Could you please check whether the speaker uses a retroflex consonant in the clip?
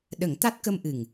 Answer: no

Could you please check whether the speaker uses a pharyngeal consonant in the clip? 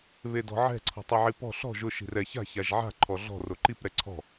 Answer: yes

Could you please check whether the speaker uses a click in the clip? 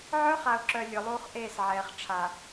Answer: yes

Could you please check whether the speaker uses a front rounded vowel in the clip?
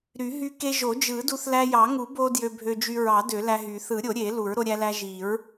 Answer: yes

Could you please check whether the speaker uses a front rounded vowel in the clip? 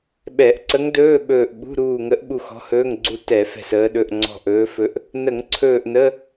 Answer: no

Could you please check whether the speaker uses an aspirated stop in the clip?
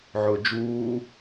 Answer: no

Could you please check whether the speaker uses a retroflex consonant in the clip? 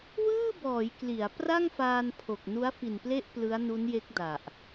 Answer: no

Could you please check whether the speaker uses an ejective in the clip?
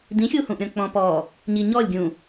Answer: no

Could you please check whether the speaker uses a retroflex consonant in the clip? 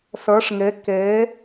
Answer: yes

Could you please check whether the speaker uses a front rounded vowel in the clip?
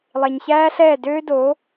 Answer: yes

